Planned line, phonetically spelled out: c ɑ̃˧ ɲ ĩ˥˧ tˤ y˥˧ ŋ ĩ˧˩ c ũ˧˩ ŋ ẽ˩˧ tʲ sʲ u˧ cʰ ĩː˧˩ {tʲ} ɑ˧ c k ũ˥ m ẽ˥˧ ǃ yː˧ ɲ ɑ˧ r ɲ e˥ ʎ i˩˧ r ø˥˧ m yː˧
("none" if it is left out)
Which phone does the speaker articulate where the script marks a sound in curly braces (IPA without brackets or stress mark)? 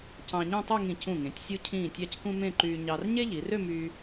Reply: tʲ